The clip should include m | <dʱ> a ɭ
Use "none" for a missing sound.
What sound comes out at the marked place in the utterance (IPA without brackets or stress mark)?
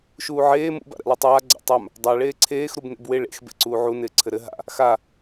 dˤ